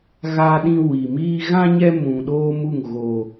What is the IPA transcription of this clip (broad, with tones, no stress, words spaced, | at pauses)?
ɣa˦ɗĩ˦ wi˨miː˦ ɣã˦ ɲɛ˦mũ˨ɗoː˦mu˦˨ŋ ɣo˦